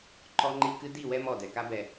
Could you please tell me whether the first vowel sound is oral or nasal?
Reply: oral